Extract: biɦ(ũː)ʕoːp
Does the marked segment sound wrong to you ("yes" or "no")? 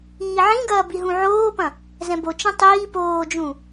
yes